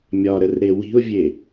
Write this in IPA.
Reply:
mʲ ɒ ɾ ə r ɾ e w i̤ ʊ̯ vʲ e

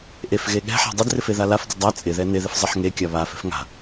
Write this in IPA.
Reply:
ʔ e f ɣ e ɠ ɛ̤ ħ a̤ dˤ ɪ d r ɪ f e ð a l a f d ɪ dˤ a t͡sʼ ɪ ð ɛ n ɪ ð ɪ f zˤ ɪ ħ ŋ e kʲ a β a f ɛ̤ f ŋ a̤

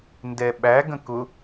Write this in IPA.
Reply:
n d ɛ ɓ æ ɡ ə̃ k ʊ

